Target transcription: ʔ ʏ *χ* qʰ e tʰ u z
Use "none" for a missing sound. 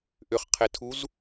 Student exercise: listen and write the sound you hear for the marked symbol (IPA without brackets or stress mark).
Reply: χ